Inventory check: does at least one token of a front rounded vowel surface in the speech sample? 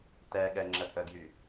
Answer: yes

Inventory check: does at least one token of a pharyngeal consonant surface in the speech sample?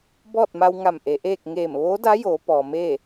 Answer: no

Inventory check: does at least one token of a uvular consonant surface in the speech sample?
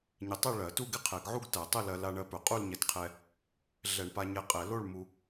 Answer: yes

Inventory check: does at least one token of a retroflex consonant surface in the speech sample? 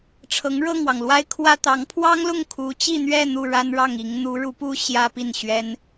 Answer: yes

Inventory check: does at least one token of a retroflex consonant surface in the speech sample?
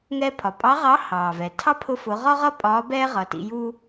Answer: no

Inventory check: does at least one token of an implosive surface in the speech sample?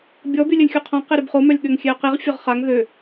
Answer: yes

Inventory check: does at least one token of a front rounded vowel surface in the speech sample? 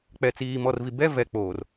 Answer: no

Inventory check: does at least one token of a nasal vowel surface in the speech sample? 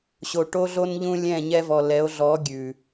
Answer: yes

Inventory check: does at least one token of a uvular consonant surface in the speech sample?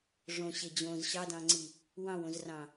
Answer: no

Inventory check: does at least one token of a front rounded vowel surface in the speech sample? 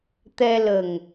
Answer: no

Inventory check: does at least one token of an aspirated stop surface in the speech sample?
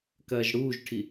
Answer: yes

